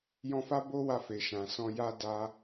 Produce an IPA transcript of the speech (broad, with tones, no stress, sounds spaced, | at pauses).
j ɔ̃˧ f a˦ b o˦ w a˧ f e˨ ʃ ã˨ s ɔ̃˧ j a˦ d a˧